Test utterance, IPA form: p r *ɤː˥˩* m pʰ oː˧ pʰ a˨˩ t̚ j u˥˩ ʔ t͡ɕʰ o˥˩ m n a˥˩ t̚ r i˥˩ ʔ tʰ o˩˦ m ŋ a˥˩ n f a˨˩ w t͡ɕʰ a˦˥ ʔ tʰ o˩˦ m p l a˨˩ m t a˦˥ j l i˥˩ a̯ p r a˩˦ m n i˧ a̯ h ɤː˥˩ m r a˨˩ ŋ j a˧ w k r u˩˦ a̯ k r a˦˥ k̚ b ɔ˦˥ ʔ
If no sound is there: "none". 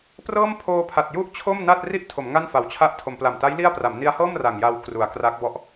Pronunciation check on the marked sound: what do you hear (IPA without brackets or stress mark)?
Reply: ɤː˥˩